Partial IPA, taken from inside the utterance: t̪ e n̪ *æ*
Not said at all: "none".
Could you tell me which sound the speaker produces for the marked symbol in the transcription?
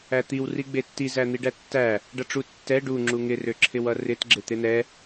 ɛ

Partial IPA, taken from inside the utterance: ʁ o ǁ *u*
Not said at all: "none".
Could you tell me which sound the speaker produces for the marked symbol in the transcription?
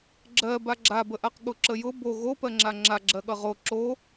o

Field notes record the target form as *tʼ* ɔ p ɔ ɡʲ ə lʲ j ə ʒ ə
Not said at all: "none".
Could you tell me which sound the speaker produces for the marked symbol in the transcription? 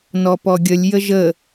n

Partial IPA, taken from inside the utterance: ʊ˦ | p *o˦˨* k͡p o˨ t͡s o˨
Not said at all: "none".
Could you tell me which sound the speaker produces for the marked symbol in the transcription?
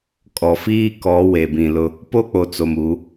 o˦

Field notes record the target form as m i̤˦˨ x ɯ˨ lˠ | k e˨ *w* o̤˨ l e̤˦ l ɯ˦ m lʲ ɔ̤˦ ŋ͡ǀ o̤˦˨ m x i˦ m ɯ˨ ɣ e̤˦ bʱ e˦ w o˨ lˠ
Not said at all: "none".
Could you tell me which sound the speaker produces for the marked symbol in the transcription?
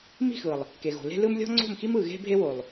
ɣ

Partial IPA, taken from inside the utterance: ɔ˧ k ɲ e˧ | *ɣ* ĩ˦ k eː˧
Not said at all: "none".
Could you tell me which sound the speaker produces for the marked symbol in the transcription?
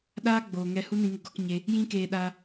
j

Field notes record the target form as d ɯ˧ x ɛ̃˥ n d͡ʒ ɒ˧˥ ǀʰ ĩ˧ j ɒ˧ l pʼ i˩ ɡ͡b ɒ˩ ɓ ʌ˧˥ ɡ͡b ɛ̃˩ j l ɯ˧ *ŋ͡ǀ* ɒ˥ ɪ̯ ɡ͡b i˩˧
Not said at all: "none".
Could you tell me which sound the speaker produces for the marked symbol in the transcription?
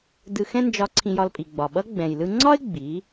ŋ͡ǀ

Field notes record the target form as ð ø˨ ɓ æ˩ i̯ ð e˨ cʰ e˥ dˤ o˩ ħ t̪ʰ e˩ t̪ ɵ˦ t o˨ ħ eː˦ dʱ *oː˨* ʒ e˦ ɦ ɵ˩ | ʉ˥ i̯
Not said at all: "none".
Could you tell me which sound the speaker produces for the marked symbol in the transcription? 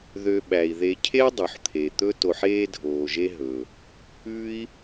oː˨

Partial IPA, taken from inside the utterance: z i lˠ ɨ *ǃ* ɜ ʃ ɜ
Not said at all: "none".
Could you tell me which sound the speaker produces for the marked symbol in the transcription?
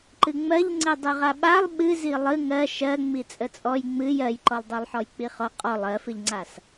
ŋ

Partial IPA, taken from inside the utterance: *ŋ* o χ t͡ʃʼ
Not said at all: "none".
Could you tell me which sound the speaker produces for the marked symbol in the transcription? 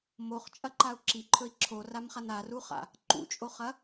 m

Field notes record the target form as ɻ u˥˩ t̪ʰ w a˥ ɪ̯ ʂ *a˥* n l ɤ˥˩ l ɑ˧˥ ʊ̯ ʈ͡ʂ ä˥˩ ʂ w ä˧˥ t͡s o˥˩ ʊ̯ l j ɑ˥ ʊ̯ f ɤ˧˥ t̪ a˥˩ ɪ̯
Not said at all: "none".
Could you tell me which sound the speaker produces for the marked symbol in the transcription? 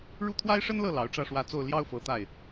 ə˥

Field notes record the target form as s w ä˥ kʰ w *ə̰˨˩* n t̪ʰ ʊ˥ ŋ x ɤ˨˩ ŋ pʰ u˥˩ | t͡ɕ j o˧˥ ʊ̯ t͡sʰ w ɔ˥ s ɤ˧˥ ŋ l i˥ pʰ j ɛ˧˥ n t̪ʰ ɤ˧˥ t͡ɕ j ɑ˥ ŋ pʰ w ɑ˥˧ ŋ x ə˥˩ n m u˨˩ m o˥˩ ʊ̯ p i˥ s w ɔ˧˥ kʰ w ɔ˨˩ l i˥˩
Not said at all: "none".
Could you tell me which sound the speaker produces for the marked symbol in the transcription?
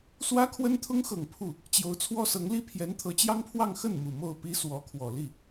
ə˥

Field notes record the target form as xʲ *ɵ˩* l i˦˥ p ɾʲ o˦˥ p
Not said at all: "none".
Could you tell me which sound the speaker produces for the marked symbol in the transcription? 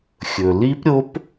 ɵ˩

